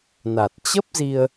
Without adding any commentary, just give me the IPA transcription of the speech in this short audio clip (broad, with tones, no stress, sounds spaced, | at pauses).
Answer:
n a˨˩ t̚ t͡ɕ ə˦˥ p̚ z i˧ ə̯